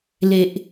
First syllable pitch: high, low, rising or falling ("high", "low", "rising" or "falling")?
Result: low